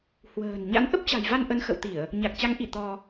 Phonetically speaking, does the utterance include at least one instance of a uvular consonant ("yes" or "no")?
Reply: no